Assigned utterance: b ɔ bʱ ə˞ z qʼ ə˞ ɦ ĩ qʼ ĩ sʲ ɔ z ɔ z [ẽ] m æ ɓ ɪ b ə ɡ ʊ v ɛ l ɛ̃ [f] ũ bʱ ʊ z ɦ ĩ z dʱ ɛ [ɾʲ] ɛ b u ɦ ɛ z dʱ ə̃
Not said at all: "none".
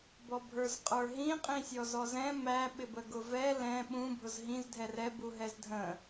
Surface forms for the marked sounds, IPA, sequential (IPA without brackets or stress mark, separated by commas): ɛ̃, ɓ, r